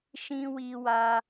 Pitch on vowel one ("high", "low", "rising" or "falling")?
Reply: high